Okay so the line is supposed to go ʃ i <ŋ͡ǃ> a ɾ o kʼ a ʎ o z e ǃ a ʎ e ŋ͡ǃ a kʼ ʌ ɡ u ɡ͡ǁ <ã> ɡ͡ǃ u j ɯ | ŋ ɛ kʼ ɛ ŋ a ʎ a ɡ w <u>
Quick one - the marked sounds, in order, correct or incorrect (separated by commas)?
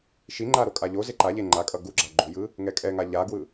correct, incorrect, incorrect